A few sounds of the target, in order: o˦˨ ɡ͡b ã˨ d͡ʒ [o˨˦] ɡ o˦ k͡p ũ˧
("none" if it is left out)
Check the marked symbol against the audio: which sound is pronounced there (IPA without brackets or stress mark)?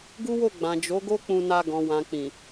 o˨˦